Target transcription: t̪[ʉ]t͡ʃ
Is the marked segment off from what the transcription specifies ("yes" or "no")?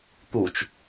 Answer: yes